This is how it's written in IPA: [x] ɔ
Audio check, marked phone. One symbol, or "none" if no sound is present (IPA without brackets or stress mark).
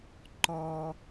ǃ